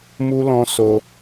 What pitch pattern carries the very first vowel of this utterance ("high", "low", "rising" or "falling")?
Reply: high